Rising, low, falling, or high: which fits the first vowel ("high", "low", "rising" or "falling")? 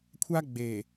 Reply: high